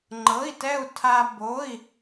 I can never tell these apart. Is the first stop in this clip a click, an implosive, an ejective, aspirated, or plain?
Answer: click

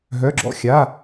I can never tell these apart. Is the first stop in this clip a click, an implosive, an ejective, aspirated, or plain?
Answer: click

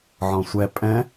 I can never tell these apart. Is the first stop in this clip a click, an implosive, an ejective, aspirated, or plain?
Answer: ejective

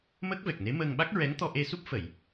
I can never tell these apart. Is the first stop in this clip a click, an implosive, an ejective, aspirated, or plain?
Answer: plain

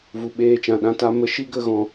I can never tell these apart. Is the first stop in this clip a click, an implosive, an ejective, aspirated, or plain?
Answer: implosive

